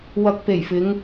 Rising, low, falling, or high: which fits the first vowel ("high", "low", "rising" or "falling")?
low